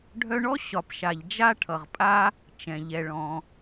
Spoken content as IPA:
ɖʱœ˦ɳɔ˥ ɕɒ˨pʃa˨ʎ d͡ʒa˥ʈʰʌ˨ʁ pʼa˥ | t͡ʃɛ̃˩ʎɛ˨ ɭɔ̃˩

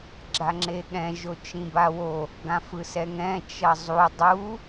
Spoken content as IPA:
ɡ͡ǁaŋ͡ǁeɠɛ̃ ʒot͡ʃĩbawo | ɡãfɯsɛŋɛ̃ t͡ʃʌzˤu dˤu

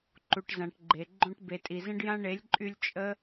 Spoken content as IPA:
ǃu˨ʈzã˨ʈɡ͡ǃe˨ ɡ͡ǃõ˧ʈ be˨tʼi˨zə̃˦ɖjã˦ ɳe˨˦lʲǃʼy˧lʲ t͡ʃʼə˦

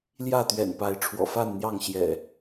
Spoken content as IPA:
ljä˥˨t̪ɥɛ̰˨˩npa˨˦ɪ̯ ʈ͡ʂʰwɔ̰˨˩fa˥˨nn̪jɑ˥˨ŋ ɕjɛ̰˨˩

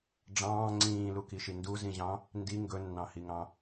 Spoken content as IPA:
ɖ͡ʐɑ̃ː ŋ͡ǀĩːlukiʃi nduzĩʑɑ̃ | ndi ŋɡɵnːɑ̃hiŋɑ̃

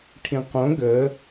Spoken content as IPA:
ʈʰĩqõ ɡə

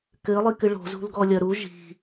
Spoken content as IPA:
kɘ lˠikɨɭo̤zṳl ɡɔlʲɐɾu ʒi̤

